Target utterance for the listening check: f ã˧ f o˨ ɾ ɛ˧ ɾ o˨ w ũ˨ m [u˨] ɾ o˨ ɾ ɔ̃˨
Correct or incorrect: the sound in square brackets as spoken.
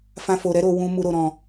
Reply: correct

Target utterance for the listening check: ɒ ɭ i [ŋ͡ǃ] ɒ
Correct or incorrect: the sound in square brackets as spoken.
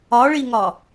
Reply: incorrect: ŋ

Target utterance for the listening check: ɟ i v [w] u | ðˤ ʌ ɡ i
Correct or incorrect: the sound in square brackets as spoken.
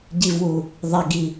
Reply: correct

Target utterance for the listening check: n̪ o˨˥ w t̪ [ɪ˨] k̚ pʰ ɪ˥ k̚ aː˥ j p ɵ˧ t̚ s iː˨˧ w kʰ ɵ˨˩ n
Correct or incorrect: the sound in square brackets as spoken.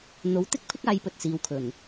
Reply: incorrect: ɪ˥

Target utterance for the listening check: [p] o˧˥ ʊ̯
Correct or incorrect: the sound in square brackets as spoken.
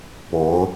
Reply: correct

